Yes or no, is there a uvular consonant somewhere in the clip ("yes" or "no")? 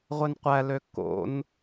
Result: yes